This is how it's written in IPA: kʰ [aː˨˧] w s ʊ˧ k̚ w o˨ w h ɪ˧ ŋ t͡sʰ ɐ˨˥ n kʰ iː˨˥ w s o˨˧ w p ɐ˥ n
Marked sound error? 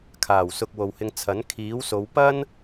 yes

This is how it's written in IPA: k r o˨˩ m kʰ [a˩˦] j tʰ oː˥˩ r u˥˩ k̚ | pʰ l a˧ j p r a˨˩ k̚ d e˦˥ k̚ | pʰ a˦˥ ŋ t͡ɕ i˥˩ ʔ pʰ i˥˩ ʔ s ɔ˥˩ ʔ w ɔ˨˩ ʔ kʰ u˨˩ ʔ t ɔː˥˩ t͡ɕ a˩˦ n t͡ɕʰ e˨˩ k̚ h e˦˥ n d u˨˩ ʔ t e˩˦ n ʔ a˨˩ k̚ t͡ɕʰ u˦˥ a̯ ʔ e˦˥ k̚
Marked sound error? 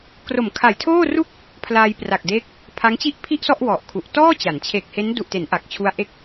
yes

